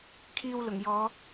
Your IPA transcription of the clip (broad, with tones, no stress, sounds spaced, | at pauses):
kʰ iː˧ w l ʊ˨˩ ŋ j ɔː˨˧